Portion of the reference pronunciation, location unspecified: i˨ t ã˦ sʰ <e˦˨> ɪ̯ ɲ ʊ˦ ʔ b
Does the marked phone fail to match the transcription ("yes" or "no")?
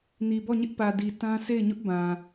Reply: no